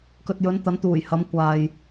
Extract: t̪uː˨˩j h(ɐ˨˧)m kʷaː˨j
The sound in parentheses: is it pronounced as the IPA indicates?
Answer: yes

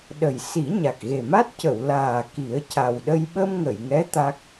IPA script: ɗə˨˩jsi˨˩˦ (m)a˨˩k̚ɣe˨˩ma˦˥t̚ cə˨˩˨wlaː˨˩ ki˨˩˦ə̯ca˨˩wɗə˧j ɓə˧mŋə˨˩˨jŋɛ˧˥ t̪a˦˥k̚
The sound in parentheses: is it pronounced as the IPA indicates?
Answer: no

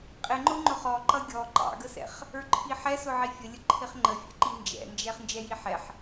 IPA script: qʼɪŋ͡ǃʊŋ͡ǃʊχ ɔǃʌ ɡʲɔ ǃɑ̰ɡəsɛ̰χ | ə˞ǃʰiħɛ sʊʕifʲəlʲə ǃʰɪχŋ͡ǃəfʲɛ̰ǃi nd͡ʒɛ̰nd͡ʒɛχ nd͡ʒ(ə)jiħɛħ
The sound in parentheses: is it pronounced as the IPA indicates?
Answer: no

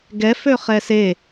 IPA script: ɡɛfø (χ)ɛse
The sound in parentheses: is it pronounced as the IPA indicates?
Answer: yes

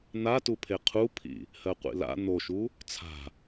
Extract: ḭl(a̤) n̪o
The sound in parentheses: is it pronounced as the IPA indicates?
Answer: no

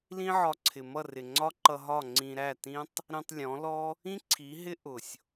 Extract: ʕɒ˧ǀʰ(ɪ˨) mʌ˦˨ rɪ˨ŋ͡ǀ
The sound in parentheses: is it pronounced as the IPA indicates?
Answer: yes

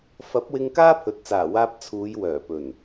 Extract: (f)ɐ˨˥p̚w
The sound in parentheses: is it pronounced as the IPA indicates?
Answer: yes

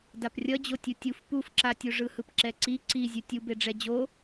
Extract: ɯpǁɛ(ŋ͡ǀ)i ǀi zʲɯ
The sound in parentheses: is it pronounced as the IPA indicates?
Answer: no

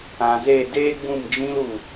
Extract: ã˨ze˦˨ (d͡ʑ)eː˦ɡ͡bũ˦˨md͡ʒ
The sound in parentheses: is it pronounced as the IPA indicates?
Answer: no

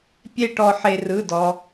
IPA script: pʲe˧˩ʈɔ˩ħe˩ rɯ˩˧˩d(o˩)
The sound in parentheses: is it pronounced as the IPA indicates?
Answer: no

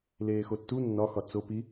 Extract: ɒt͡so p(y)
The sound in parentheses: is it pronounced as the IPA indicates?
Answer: no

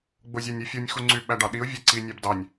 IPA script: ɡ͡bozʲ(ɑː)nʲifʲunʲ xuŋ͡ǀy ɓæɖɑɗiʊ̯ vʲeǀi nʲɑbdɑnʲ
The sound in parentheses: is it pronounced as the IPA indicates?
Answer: no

